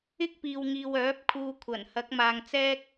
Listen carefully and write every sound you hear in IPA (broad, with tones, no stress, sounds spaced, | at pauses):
ɪ˥ k̚ p iː˨ w ŋ iː˨ w œː˨˥ p̚ kʰ uː˧ kʷʰ ɐ˨˩ n h ɐ˨˥ k̚ m aː˨ ŋ t͡s ɛː˥ k̚